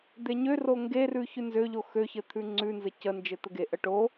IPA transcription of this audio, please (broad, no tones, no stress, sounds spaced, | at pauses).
d̪ e ɲ ø r o ŋ ɡ e r ʉ ç ʉ n z ø ʎ o x ø ç ɘ t̪ʰ ʉ ŋ͡ǀ ʉ n z ɘ c ə n d͡ʒ ɘ t̪ ə ɡ e ʔ ə ʈ o